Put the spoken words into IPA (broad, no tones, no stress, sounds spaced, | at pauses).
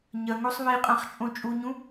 ɲ ɐ ŋ o sˤ β i qʼ ã χ t͡ʃʼ õ t͡ʃʼ u ɲ ũ